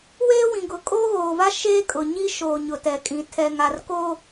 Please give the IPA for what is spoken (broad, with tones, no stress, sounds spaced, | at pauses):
w eː˦ w ĩ˨ ɡ ʊ˨ kʼ o˦ ɣ oː˨ v a˦ ʃ eː˦ kʼ ʊ˨ ɲ i˦ ʃ oː˨ ɲ ʊ˨ t ɛ˨ kʼ ĩ˨ tʰ ɛ˨ ŋ a˨ r k o˦